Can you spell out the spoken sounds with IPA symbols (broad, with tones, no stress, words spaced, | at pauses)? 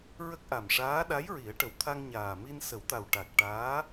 ɹə˦˥k̚ʔa˨˩mʂaː˧˥ ɗa˧˥jɹi˨˩˦ə̯ʈə˨˩wt̪ʰa˧ŋ ɲaː˨˩mi˧n sə˨˩˦wt̪a˨˩w ʈa˨˩k̚ ʈaː˧˥